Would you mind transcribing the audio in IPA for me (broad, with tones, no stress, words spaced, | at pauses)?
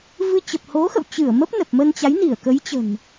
vɨ˧ t͡ɕə˨˩p̚ho˨˦xə̰˧˨w t͡ɕɨ˧˩ə̯ mə˦˥p̚nə˨˩p̚mə˧nt͡ɕa˨˦j ni˧˩ə̯kə˨˦j t͡ɕə̤˨˩n